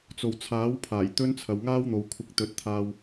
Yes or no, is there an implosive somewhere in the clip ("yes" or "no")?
no